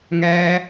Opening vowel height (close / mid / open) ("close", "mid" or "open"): open